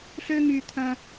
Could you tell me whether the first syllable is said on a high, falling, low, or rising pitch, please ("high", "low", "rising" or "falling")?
low